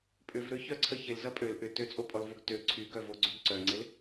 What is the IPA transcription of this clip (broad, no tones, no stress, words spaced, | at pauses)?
pʼʏvɾøçœǀʰə çɪlzɐ pʼøl ʔʏ tøt͡sʼopʼɔlvoɡ tø ǀʰyɡœvoɡ͡ǀyɡ ǀœŋ͡ǀɪl